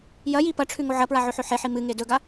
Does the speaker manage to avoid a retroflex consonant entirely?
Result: no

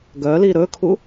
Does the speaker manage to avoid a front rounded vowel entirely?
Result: no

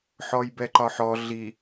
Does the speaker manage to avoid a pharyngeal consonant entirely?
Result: no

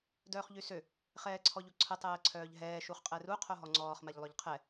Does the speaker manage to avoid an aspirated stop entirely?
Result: no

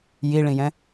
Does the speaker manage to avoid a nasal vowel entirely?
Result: no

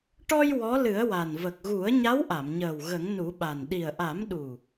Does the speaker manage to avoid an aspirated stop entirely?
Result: yes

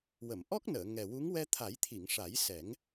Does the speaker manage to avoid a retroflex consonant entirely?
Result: no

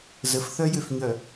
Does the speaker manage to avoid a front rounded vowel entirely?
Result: no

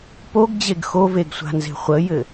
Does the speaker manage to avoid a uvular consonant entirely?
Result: no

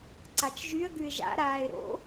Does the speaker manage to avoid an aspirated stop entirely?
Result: yes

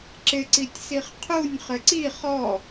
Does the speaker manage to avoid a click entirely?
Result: no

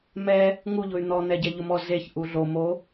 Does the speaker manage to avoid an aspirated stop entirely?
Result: yes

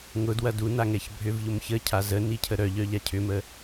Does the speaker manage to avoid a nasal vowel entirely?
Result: yes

